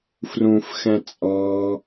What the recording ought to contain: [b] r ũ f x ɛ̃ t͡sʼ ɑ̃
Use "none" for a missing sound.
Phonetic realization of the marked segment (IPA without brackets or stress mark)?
f